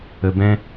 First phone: ə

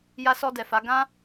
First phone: j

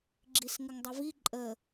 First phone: ɡ͡ǁ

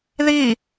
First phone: ð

